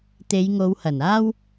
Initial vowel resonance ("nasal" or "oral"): oral